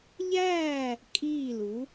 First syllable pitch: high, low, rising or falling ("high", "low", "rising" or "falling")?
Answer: falling